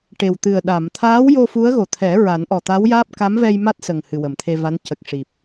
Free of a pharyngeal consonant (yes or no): yes